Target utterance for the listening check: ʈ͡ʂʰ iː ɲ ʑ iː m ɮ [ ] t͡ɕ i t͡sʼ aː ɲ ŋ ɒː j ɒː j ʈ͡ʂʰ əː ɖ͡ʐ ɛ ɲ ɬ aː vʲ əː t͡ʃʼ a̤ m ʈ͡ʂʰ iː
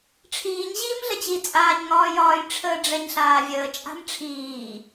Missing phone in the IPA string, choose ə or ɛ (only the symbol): ə